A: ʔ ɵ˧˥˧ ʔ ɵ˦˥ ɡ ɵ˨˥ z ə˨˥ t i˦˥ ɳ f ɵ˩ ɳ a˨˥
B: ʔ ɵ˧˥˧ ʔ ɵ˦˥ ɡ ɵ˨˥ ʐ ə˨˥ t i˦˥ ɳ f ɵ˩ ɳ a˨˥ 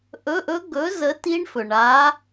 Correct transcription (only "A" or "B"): A